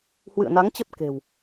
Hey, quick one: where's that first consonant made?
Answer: throat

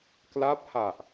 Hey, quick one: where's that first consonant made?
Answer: velum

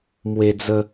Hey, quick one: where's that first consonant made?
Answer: lips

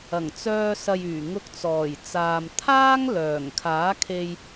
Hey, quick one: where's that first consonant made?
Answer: velum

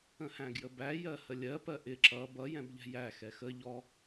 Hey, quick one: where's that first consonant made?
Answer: throat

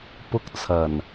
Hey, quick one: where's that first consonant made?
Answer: lips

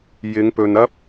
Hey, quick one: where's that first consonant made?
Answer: palate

